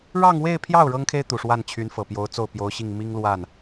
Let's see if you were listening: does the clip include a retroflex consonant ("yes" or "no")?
yes